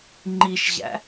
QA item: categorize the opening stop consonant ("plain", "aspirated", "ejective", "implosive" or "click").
click